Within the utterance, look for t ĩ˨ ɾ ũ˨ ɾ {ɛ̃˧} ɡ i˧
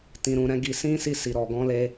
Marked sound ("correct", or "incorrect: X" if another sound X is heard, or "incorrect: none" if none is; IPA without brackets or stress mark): incorrect: ɛ̃˨˦